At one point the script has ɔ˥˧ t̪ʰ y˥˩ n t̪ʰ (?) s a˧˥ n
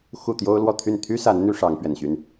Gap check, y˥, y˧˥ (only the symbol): y˥